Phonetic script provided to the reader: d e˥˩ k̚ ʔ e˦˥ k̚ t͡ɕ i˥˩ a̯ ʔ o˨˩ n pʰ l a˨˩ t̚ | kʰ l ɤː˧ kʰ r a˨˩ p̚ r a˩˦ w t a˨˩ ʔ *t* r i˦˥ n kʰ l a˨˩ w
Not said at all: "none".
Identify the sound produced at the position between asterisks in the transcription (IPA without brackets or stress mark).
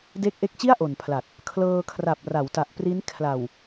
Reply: p